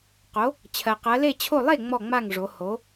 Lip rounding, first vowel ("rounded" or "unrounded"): rounded